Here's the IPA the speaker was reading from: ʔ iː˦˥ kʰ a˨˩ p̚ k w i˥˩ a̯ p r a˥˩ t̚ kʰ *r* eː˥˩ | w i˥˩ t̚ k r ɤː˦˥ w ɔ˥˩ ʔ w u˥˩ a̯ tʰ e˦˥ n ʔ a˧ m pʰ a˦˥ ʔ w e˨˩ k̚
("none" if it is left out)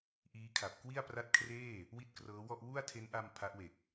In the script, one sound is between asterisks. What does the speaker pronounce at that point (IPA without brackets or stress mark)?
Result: r